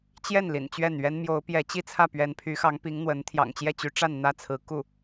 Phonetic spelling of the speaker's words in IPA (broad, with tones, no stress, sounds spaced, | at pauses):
t͡ɕ j ɛ˥˩ n l ḭ˨˩ n t͡ɕ ɥ ɛ˥˩ n ɥ ɛ˥ n m j o˧˥ ʊ̯ p j ɛ˧˥ t͡ɕ i˥ t͡sʰ ä˥˩ p ɥ ɛ˧˥ n pʰ y˧˥ x ɑ˧˥ ŋ p i˧˥ ŋ n̪ w ə˧˥ n t̪ʰ j ɑ̰˨˩ ŋ t͡ɕ j ɛ˥˩ t͡ɕ y˧˥ ʈ͡ʂ a˥˧ n n̪ ä˥˩ t͡sʰ ɹ̩˧˥ k u˥˩